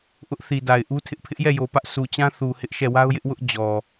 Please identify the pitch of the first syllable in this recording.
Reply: high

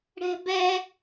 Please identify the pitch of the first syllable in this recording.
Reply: high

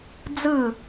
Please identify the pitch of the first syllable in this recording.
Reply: falling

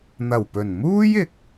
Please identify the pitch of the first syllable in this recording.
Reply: low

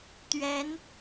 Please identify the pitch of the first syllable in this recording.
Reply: rising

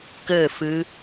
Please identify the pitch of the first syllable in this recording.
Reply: falling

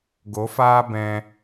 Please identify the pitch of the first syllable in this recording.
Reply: rising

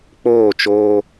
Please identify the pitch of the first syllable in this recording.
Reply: falling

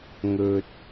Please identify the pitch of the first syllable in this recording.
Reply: high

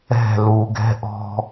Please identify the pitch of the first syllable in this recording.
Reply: falling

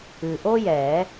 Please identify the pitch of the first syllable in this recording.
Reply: low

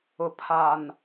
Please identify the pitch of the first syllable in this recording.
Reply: low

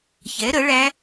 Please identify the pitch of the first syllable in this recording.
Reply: rising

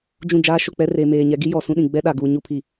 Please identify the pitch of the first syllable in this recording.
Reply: falling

